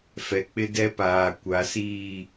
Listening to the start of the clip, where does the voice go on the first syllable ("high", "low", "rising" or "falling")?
low